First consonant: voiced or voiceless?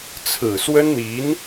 voiceless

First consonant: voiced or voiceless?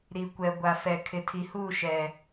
voiced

